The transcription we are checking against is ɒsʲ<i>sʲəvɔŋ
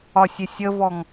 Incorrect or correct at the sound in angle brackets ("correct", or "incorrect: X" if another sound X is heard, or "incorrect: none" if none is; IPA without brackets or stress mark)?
incorrect: ɪ